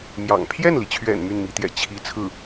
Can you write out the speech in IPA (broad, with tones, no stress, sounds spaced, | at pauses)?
m j ɑ̰˨˩ ŋ pʰ j ɛ˥˩ n l i˩ t͡ɕʰ ɥ ɛ̰˨˩ n m y˥˩ n m i˧˥ t̪ j ɛ̰˨˩ t͡ɕʰ i˥ t͡sʰ ɹ̩˥˩